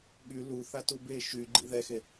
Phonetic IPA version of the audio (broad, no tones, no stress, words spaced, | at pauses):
ɠy luθatu be ʃyɡ͡ǃḭ ðɛxe